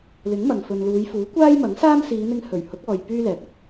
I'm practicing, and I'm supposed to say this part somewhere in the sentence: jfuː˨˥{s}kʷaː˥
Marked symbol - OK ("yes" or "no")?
no